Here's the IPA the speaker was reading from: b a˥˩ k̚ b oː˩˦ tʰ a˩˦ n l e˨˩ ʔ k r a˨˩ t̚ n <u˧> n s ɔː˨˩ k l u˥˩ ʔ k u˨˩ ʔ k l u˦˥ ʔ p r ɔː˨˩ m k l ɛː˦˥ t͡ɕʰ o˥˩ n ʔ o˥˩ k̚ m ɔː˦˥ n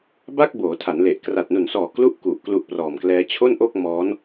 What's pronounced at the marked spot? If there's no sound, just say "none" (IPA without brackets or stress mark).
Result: u˨˩